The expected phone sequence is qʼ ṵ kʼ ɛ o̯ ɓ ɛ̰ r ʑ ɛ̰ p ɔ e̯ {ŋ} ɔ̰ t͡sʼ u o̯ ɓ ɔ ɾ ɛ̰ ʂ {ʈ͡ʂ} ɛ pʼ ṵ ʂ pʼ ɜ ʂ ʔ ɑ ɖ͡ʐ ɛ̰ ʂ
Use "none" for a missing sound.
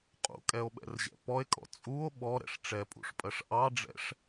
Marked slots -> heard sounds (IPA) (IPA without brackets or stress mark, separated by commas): kʼ, ʈ͡ʂ